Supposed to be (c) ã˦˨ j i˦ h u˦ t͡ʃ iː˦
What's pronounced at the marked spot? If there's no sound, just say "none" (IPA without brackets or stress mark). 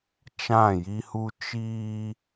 t͡ʃ